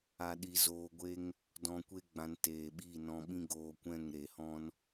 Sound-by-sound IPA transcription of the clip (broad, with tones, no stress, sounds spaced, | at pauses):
a˧ ɗ i˧ z oː˧ ɡʷ e˦ ŋ | d ɔ̃˧ kʷ e˦ ɡ͡b ã˧ n t eː˨ ɓ i˦˨ n ɔ̃˧ ɓ ĩ˦ ɡ oː˧ kʷ ɛ̃˦˨ ŋ ɾ e˨ h ɔ̃˦ n